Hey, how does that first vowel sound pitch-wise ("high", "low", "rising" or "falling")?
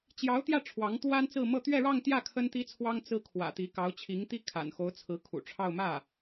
rising